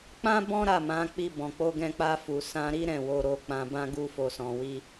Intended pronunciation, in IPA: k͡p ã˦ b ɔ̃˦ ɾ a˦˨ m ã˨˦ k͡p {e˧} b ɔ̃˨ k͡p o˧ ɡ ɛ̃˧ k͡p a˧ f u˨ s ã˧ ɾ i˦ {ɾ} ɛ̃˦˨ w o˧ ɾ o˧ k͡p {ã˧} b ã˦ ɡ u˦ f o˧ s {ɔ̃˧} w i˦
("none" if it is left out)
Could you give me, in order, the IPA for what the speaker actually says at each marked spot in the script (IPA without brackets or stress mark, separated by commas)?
i˧, ɾ, ã˧, ɔ̃˧